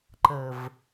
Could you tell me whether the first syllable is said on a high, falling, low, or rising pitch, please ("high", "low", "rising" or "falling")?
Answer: low